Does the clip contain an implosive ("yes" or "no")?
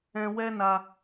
no